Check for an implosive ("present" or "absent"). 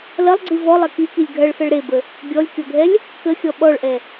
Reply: present